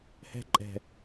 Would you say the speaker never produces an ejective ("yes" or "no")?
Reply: no